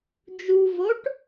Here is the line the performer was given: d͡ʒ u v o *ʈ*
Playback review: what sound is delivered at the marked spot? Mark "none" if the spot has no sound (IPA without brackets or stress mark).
ʈ